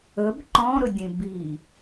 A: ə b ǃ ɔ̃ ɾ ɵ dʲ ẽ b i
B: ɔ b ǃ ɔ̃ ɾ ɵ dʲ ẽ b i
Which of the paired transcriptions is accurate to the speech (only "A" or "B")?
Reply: A